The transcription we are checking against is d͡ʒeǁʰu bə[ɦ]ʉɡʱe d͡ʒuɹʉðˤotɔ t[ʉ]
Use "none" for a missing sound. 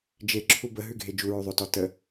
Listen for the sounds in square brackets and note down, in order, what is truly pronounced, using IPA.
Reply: ɦ, ə

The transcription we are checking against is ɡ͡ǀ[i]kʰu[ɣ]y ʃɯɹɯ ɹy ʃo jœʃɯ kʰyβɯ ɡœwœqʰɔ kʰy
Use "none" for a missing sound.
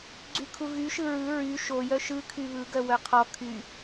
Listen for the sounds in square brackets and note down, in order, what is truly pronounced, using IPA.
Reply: y, ɣ

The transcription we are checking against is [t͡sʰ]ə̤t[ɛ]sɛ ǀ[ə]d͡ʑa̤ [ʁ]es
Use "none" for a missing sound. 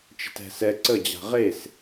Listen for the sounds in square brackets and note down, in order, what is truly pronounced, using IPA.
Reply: t͡ʃ, ɛ̤, ə, ʁ

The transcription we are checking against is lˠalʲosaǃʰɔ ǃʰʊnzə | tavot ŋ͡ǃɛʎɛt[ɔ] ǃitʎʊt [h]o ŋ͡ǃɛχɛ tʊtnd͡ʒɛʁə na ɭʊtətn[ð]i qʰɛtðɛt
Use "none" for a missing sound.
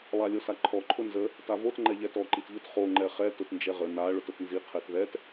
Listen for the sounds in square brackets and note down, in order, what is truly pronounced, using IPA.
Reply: ɔ, χ, z

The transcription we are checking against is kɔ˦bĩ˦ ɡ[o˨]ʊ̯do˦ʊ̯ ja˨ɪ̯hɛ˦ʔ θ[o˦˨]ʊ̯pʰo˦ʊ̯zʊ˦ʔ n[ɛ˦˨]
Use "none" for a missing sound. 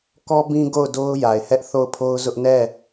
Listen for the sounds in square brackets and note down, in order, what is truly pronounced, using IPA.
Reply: o˦˨, o˦˨, ɛ˦˨

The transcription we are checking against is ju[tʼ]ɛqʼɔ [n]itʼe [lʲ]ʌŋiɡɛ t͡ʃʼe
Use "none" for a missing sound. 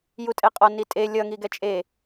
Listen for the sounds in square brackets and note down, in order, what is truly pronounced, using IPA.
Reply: tʼ, n, lʲ

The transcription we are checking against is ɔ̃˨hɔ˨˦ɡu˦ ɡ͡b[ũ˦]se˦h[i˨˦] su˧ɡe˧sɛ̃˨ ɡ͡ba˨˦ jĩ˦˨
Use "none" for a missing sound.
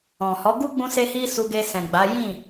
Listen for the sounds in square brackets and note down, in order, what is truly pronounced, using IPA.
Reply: ũ˦, i˦

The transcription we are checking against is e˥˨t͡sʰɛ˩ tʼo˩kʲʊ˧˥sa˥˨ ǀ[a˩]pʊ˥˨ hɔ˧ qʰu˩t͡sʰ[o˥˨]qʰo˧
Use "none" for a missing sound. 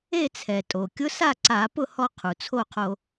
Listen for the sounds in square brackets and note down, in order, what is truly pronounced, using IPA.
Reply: a˧˩˧, o˥˨

